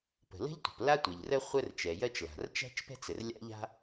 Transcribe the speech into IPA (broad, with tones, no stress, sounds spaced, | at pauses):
p ə̤˩ l ə̤˥ ʎ tʷ ə̤˩ p l a˥ tʷ ɛ˩ ʎ r ə˥ χʷ ə˥ r t͡ʃ ɛ˩ j ɜ˥ t͡ʃ l a̤˩ r t͡ʃ æ̤˥ t͡ʃ p ɛ̤˥ t͡s ɘ˩ r lʲ a̰˥ ʎ a̤˥